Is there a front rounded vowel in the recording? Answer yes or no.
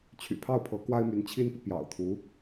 yes